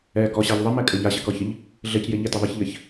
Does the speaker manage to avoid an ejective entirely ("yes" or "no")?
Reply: no